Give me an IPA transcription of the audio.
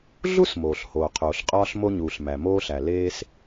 ɮ u˥ s m oː˩ ɬ h oː˩ qʰ oː˩ ɬ qʼ ɒː˥ ɬ m o˥ ɲ uː˩ ɬ m æ˩ m oː˥ ɬ æ˩ l eː˥ s

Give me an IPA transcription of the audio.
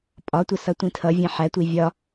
pʼ ɒ tʷ ə s ʌ tʷ ĩ tʰ ʌ vʲ ɛ̃ ħ æ tʷ i vʲ ɒ

